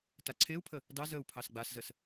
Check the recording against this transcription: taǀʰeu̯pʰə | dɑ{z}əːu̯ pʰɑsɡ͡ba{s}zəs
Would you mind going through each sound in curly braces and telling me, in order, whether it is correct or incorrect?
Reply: correct, correct

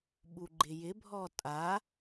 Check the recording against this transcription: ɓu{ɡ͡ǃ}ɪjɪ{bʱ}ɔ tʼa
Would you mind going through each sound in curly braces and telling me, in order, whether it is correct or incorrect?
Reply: correct, correct

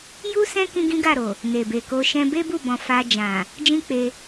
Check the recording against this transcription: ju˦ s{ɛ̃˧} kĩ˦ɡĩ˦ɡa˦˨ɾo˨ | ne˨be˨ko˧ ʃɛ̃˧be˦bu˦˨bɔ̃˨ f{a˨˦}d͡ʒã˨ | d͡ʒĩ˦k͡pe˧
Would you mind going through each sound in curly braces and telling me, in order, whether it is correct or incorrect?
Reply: incorrect: ɛ̃˦, incorrect: a˧

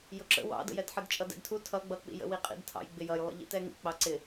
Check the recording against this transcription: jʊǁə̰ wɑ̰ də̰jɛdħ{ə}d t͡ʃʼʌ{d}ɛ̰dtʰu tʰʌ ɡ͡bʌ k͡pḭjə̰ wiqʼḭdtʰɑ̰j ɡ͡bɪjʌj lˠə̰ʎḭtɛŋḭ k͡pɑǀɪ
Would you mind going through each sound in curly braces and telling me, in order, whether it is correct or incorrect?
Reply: correct, correct

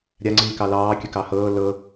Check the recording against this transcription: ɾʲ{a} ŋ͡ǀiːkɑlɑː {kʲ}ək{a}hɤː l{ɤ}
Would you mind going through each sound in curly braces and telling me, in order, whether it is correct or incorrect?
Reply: correct, correct, incorrect: ɑ, correct

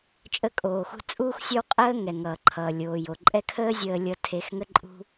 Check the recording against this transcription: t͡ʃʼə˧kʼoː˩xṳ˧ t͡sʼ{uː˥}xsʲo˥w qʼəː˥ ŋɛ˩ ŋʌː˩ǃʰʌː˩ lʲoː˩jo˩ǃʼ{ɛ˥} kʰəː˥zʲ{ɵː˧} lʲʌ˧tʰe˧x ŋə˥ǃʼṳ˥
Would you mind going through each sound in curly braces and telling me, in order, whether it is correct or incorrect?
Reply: correct, correct, incorrect: əː˧

